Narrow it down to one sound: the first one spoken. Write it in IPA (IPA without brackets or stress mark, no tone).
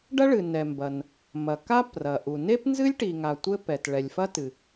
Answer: ɖ